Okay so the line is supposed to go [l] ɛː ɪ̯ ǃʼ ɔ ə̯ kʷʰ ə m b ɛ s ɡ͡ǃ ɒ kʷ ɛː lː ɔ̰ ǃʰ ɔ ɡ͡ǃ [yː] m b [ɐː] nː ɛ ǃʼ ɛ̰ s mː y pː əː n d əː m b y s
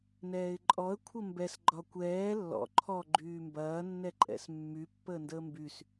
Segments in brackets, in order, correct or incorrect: incorrect: n, correct, correct

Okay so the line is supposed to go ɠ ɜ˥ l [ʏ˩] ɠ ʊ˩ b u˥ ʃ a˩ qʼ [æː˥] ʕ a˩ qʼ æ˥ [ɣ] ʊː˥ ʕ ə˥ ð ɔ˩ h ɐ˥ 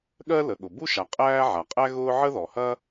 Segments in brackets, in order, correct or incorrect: incorrect: ə˩, correct, correct

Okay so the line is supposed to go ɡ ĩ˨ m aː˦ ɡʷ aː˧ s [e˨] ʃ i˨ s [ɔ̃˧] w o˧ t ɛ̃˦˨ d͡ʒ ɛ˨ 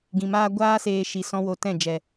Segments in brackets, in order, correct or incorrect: incorrect: eː˨, correct

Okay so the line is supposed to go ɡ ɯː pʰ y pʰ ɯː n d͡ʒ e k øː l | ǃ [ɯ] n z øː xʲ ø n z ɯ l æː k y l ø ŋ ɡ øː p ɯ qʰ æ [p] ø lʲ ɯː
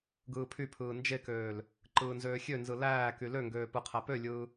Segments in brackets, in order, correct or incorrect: incorrect: ɯː, correct

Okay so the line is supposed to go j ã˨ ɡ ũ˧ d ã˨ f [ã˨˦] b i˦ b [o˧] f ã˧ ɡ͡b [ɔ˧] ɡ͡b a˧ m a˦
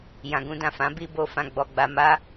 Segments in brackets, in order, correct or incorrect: correct, correct, correct

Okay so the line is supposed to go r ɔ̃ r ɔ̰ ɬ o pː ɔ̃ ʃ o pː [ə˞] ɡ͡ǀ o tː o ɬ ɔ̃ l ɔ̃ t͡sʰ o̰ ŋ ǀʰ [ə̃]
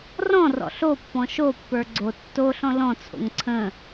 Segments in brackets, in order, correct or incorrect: correct, correct

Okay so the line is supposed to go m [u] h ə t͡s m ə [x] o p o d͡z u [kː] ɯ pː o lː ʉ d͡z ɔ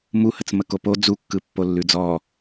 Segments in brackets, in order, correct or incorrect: correct, incorrect: k, correct

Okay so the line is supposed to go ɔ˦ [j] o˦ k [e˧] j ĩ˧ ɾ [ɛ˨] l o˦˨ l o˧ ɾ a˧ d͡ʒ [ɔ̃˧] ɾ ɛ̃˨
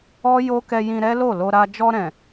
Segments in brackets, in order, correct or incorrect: correct, incorrect: ɛ˧, incorrect: ɛ˦, incorrect: ɔ˧

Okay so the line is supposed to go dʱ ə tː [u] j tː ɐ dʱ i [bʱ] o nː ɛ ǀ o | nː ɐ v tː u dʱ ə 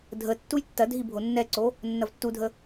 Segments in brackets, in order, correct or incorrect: correct, correct

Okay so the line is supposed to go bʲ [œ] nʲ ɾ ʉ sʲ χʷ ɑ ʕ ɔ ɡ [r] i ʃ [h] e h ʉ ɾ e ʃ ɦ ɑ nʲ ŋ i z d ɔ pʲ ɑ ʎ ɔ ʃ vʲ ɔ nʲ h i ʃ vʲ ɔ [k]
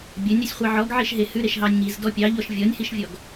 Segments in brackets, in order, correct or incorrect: correct, incorrect: ʕ, incorrect: ɦ, incorrect: ɡ

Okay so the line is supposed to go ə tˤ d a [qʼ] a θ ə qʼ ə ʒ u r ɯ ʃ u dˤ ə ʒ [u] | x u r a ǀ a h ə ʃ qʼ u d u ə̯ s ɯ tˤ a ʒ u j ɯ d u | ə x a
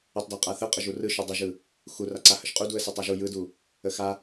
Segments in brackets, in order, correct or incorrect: correct, incorrect: ɯ

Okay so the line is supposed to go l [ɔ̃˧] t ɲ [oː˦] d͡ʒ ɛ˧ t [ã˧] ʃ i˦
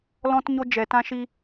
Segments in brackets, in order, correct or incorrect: incorrect: ɔ̃˦, incorrect: o˦, incorrect: ã˦

